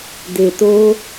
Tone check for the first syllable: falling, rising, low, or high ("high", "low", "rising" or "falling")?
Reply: low